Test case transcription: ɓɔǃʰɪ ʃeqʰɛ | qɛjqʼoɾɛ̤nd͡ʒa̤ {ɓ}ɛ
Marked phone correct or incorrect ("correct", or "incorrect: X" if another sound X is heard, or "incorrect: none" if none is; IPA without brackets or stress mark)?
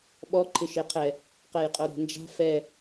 incorrect: f